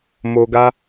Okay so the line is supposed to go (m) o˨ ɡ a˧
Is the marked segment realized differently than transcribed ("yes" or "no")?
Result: no